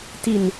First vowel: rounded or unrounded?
unrounded